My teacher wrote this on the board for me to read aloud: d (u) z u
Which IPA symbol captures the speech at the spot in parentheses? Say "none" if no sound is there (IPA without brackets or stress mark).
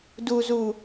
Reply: u